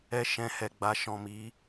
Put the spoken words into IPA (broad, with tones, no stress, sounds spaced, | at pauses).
ɛ˧ ʃ ɛ̃˧ h ɛ˨ ɡ͡b a˧ ʃ ɔ̃˨ m i˨˦